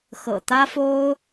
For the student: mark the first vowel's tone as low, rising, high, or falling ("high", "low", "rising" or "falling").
low